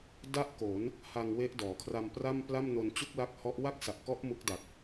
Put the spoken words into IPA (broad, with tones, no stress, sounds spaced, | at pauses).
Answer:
d a˥˩ ʔ k o˩˦ n | h a˧ ŋ w e˦˥ ʔ d ɔː˩˦ kʰ r a˧ m p r a˥˩ m p l a˥˩ m n o˧ n t͡ɕ u˥˩ k̚ l a˦˥ k̚ h ɔ˦˥ ʔ w a˥˩ k̚ s a˨˩ ʔ k ɔ˦˥ ʔ m u˦˥ k̚ d a˨˩ k̚